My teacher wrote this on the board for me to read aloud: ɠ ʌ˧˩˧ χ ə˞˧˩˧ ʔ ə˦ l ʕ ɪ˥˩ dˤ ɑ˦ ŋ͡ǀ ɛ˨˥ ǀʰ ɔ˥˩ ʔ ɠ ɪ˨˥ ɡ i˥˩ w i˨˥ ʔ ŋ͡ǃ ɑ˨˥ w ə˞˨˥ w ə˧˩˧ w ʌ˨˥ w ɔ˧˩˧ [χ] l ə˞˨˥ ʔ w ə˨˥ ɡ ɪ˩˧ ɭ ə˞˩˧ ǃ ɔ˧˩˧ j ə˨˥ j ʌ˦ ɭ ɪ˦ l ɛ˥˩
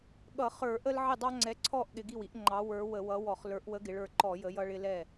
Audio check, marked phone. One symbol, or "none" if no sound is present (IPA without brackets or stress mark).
χ